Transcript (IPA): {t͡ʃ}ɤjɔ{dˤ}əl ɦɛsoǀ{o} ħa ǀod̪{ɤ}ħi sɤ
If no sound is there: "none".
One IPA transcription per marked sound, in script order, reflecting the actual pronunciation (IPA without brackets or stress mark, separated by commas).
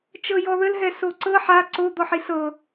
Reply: t͡ʃ, ð, ɤ, ɔ